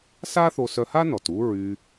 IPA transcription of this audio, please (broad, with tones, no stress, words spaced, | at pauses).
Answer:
sa˥θo˧sœ˧ha˥ nɔ˩t u˥ɹy˧